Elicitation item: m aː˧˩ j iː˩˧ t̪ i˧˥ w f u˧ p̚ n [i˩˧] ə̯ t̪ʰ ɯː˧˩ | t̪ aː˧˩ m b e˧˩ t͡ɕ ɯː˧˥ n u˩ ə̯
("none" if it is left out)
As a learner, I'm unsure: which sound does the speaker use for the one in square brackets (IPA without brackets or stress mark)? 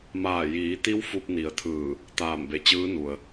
i˩˧